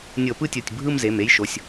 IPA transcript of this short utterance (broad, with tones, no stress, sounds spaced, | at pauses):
nʲ ɤ˧˩˧ p ɯ˥˧ tʲ o˩˧˩ tʲ bʱ ɯ˥˧ m z e˩˧˩ m e˦˥ j ʃ o˩˧˩ sʲ